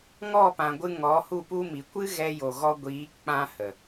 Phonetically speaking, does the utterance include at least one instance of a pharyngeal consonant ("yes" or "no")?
no